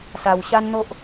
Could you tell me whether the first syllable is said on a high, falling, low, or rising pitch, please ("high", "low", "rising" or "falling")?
low